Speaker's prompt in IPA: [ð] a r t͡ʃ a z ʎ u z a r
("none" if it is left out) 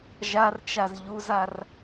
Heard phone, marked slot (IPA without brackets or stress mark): ʒ